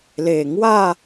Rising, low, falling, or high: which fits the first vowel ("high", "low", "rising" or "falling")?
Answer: low